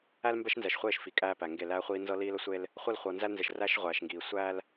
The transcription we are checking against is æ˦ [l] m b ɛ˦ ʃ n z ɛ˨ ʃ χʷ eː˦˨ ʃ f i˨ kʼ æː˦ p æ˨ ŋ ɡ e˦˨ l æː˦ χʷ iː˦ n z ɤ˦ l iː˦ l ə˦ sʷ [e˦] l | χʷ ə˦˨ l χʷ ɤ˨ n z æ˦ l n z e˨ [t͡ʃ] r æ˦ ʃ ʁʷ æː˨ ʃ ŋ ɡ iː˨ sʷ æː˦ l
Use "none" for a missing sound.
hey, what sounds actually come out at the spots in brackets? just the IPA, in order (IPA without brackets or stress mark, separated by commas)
l, e˦, ʃ